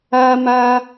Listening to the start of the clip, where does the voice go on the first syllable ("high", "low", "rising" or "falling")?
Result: high